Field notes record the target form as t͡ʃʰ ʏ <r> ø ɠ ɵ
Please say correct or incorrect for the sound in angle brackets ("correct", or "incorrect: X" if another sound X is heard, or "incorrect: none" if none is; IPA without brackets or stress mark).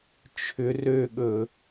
correct